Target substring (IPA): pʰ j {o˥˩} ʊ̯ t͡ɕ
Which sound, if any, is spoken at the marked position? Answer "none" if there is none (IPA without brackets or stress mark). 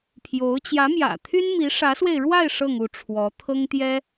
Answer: o˧˥